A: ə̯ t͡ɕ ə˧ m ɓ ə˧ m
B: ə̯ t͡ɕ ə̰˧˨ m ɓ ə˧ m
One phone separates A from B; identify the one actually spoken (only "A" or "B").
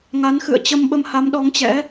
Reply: A